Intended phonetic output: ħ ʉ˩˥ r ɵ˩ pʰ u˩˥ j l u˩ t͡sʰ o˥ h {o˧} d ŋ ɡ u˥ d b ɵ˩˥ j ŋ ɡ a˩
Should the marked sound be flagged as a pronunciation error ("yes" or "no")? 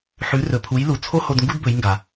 no